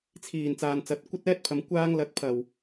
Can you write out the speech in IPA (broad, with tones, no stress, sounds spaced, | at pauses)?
t͡sʰ iː˨˩ n t͡s aː˨ n t͡s ɐ˨˥ t̚ kʷ ɐ˥ t̚ ɛː˥ t̚ pʰ ɐ˨˧ m kʷ aː˧ ŋ l ɐ˨˥ t̚ pʰ ɐ˨˩ w